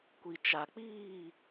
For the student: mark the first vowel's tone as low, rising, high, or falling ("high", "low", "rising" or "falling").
low